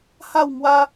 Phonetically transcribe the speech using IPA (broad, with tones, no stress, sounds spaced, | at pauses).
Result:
h a˥˧ w ŋ w a˦